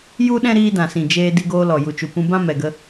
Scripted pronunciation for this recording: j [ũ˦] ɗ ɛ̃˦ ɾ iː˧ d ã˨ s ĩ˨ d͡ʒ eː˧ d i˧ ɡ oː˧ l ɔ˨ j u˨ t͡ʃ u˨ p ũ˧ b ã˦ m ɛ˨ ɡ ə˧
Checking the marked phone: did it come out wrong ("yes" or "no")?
yes